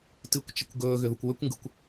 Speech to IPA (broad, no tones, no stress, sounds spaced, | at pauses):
t ɨ kʷ t͡ʃ ə kʷ ɡ ɵː ɣ ʏ ð u kʷ w ʏ kʷ ŋ ɡ ɯ kʷ